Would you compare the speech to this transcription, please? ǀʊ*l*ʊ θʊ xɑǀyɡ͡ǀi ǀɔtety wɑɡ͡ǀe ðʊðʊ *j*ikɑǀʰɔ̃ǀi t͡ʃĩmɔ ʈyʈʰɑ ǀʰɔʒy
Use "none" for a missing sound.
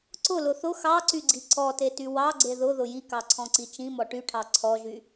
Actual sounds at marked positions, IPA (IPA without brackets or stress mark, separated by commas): l, j